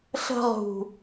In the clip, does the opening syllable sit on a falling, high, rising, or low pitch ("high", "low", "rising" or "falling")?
high